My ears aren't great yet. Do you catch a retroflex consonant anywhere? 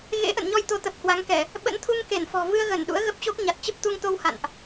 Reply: no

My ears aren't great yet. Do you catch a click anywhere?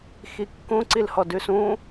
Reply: yes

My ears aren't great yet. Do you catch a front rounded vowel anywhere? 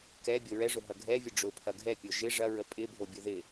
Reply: no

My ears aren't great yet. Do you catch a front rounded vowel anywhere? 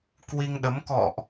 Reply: no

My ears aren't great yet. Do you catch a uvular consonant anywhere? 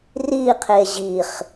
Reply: yes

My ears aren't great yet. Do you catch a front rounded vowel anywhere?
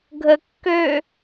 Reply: yes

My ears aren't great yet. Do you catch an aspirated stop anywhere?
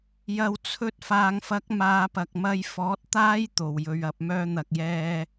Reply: yes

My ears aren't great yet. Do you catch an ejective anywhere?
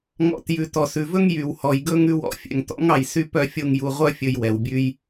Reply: no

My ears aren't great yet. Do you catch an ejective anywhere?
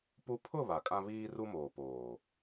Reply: yes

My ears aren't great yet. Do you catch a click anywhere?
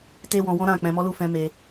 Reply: no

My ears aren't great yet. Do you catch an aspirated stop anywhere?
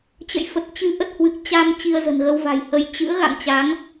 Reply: no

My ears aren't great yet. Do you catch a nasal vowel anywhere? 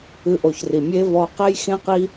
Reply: yes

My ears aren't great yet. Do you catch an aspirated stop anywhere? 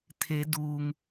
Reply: yes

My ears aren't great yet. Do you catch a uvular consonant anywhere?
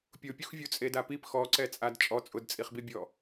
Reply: yes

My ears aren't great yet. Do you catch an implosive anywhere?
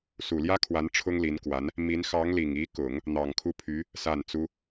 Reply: no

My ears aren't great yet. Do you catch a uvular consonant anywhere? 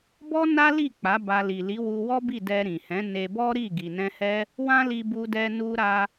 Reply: no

